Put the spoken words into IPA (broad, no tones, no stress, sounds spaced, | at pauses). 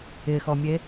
ɪ x ɔ mʲ e